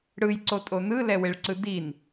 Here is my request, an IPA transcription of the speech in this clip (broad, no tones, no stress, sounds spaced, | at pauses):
ɽ ɯ j ǀ o tʼ o n ɯ l ɛ w e ɭ ǀ ɯ d i n